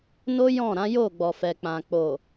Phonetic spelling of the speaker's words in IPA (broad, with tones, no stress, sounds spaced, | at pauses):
n o˦ j ɔ̃˦˨ ɾ ã˨˦ j o˦˨ ɡ͡b ɔ˨ f ɛ˨ k͡p ã˨ k͡p o˨